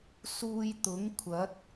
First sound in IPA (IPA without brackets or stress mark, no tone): s